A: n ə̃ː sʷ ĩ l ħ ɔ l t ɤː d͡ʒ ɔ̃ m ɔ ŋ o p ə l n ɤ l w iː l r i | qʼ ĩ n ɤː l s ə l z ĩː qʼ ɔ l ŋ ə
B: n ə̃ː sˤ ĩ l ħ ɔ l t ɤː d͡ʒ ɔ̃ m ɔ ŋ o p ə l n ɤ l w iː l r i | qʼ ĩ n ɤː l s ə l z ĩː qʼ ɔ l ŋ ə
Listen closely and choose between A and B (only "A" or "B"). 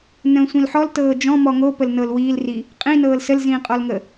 A